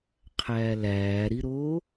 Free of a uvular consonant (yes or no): no